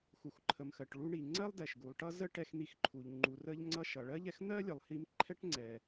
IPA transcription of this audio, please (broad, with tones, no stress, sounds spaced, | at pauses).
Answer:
x u˩ x ǃʰ ə˩ m x ɜ˩ ʈ ɭ u˧ ɳ i˩ ŋ͡ǀ ɜ˥ lˠ d ɛ˩ ʃ ɡ u˩ lˠ ʈ ʌ˥ z ə˥ ʈ ɛ˧ x n̪ i˧ x ǃʰ u˩ ʎ ŋ͡ǃ u˩ r ə˧ ʎ ŋ͡ǀ ʌ˧ ʃ ʌ˩ ɭ ɜ˥ ʎ ɛ˧ x n̪ ɜ˥ lʲ ə˩ lˠ h i˧ m ǃʰ ɛ˥ ʈ ŋ͡ǀ ɛ˩